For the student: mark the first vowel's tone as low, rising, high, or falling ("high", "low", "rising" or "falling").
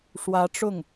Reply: rising